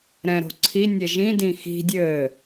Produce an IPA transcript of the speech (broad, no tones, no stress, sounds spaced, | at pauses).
ɾ ɛ̃ ɾ o̤ ǀʰ i nʲ ɛ ʒ ĩ d ĩ x i̤ dʲ ɘː